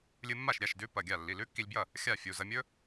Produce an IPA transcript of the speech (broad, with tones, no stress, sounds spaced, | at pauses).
lʲ ɨ˧ mː a˥˩ ʃ ɾʲ a˩˧˩ ʃ d ʉ˦˥ p ɐ˩˧˩ ɡʲ a˥˩ lː i˩˧˩ l ʉ˦˥ kː i˧ lʲ b j ɐ˥˩ | xʲ a˥˩ fʲ u˩˧˩ z ɐ˧ mʲ ɵ˦˥